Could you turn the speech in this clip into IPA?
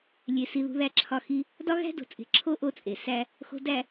lʲe˨si˨ ðṳ˨ðæ˨ǁʰɒ˨ xi˦ | dɒ˦ ɣæ̤˦do̤˨t͡sʼe̤˨ǁʰo˦ ʔo˦t͡sʼe˨ sæ˦ | xo̤˨dæ˨

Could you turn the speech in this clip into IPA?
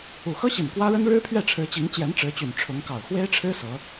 u˨˩xɤ˥ɕi˨˩n kwä˥ɻə˥n ɻɻ̩˥pʰɥɛ˥˩ʈ͡ʂʰɻ̩˧˥t͡ɕi˧˥ŋ t͡ɕjɛ˧˥nʈ͡ʂɻ̩˧˥t͡ɕy˨˩n ʈ͡ʂʰʊ˧˥ŋkɑ˨˩ʊ̯ xwe˥ɪ̯ʈ͡ʂʰɻ̩˥ sɤ˧˥

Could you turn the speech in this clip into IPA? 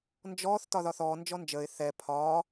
nd͡ʒɔːθ tɒðɒθɔː nd͡ʒɔnd͡ʒəːɪ̯ θɛ pʰɒː

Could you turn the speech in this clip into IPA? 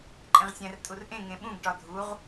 ǃʼẽʁsʲæ̃r tʼurʔẽ ŋẽɓũɡ ʈɒdʱuʁ

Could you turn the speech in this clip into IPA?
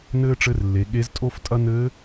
nɘː˥ʈ͡ʂɘ˧˥rlːe˩˧ ɠe˧˥ztʼo˥ftʼɐ˥ nɘː˧˥

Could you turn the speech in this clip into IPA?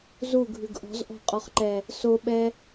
zuɡʱʉɡ ʔɔ̤zʔɔ̤qʼɔχǃɛ | soɓɛ

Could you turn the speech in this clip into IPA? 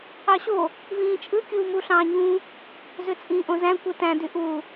ɑɕo | vĩːt͡ʃʼɯ kʲuːmuɬɑ̃ːɲũ | zøt͡sʼĩːʔõzæ̃ kʷɯtæ̃ dyʔu

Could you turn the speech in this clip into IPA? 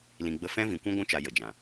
lĩ˨ɡ͡bə˧ fɛ̃˦vĩ˨kʷũ˦ ɡʷũ˧t͡ʃa˨ jə˨d͡ʒã˨

